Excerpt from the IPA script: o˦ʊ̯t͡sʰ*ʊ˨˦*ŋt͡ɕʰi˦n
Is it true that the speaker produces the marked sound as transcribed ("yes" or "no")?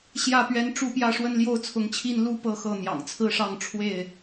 yes